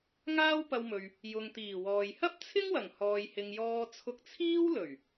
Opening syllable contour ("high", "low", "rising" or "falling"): high